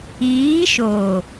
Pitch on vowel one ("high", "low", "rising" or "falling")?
rising